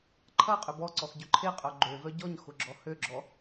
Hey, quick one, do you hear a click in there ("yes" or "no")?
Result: yes